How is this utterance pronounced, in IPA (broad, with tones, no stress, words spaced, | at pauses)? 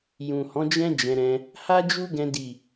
jũ˨hɔ̃˨˦d͡ʒɛ̃˦ d͡ʒɛ̃˧ɾɛ̃˧ | ha˦ d͡ʒu˦ɡɛ̃˧ di˨